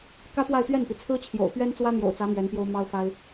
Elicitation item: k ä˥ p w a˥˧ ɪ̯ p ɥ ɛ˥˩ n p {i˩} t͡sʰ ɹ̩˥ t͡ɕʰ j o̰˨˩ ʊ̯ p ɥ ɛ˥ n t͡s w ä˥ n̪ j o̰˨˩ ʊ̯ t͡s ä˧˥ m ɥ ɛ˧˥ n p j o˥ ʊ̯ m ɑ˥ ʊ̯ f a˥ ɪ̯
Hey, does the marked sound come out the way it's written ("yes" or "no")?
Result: yes